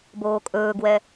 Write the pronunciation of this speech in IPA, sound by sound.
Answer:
boːkʼɵːɡwɛ

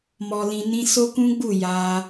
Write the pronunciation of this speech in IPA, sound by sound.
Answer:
mɔ˧lĩ˧ nĩ˧ so˦kũ˦ɡ͡bu˦˨ ja˧

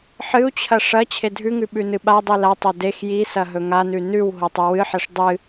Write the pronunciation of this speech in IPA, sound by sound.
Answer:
ħɨu̯t͡ɕʰɐ ʂɐ t͡ɕʰedʱʉŋʉ ɓʉnɨɓadˤi latˤo dex jisɐ ɦɵŋanʉ nʉw ɦotˤʉwɨħeʂ dˤɨ

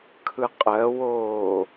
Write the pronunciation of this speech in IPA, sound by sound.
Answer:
kʰɯqʼɜwoː

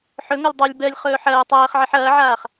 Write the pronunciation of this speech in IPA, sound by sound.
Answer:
ħɵŋɔlʲ dˤolʲ bɜlʲ χɵːħɐː tˤɜːχʕiħ ɐːʕaːχ

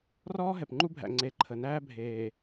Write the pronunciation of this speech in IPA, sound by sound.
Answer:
rɔː˦ ɦɛ˨pŋ͡ǃu˦bʱæ̰˨ ŋ͡ǀe˨ ǃʰə˨næː˦ bʱeː˨

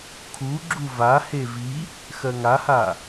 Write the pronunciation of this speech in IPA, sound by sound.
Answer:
kʰuɡ͡ǁu vahe vi | xɜŋaha

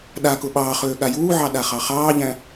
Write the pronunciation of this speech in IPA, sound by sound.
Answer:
ɗakʊ ɓɑːχøː ɠajuːʕɑ ɗaχɑχɑːʎæ̃

